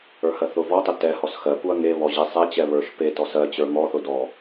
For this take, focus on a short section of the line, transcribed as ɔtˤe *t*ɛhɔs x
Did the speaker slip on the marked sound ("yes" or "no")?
no